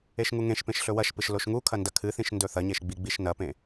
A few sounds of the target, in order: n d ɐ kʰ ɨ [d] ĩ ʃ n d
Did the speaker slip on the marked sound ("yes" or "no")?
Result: yes